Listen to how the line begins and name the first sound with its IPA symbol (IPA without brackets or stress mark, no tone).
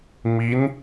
m